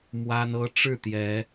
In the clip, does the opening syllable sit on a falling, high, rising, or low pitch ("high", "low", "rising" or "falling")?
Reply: high